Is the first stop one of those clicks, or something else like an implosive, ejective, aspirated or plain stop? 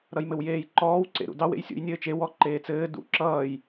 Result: click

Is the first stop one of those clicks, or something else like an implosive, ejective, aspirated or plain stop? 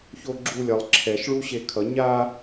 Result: click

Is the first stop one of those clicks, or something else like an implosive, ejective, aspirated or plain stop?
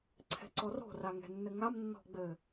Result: click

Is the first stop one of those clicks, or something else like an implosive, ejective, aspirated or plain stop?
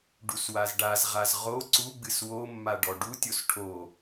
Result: plain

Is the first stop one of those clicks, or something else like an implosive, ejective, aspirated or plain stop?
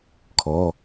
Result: aspirated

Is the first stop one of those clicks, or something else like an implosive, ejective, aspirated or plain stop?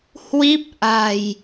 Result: plain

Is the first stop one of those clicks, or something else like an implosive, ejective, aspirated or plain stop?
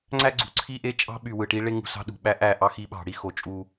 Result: click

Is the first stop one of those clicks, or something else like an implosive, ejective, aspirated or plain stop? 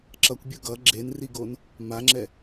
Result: click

